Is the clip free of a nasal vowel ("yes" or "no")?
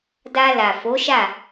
yes